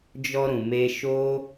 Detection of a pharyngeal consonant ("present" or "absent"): absent